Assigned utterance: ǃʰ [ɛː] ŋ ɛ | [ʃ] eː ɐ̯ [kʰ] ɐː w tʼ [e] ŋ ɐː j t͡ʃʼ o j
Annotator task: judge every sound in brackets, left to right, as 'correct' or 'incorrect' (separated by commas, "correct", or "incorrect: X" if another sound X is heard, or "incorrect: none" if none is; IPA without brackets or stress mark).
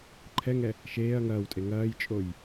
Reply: incorrect: ɛ, correct, incorrect: ŋ, correct